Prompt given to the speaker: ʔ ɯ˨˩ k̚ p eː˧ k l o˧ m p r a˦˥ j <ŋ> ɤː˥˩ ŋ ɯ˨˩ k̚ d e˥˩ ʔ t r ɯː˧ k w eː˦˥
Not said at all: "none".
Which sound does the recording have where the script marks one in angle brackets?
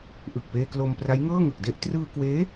ŋ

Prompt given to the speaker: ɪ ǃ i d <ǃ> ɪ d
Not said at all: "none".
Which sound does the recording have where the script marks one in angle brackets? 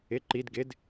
ɡ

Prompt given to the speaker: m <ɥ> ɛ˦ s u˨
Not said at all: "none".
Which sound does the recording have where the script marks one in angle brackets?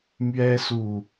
ɥ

